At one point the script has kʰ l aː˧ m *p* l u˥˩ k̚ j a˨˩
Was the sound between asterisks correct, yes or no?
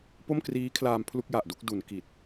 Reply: no